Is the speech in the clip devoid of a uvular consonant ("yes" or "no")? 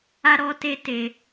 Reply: yes